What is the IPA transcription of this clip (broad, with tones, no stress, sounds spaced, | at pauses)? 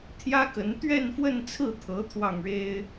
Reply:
t̪ʰ j ä˥ k ə˧˥ n t̪ ɥ ɛ˥˧ n f w ə˥˧ n t͡sʰ ɹ̩˥˩ t̪ʰ ɤ˧˥ t̪ʰ w ɑ˥˩ ŋ ɻ e˥ ɪ̯